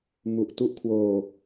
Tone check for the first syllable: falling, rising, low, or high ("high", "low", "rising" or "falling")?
low